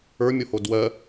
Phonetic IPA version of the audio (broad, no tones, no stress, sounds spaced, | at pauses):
ə˞ mʲ o h o d w ɜ